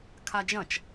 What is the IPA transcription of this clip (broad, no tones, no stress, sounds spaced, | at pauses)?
kʰ a d͡ʒ ɐ̃ t͡ʃ